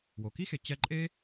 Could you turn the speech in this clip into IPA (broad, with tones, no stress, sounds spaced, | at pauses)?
w o˩ k i˥ x e˨ t͡ɕ ɛ˦ ǃʼ e˥